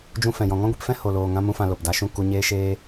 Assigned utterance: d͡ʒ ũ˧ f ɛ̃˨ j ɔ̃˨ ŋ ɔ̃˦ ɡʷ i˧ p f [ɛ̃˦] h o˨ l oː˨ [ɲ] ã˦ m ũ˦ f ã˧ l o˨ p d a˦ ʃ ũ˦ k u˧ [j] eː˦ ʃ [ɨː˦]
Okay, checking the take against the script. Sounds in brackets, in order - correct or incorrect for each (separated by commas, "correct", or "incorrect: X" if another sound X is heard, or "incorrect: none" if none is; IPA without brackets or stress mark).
correct, incorrect: ŋ, incorrect: ɲ, incorrect: eː˦